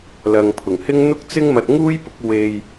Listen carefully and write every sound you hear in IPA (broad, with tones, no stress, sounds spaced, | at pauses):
l ɐ˨ ŋ pʰ ʊ˨˩ ŋ h ɪ˥ ŋ n̪ ʊ˥ k̚ t͡s ɪ˥ ŋ m ɐ˧ t̚ ŋ uː˥ j p ʊ˨˥ k̚ w e˧ j